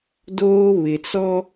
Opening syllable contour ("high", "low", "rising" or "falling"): high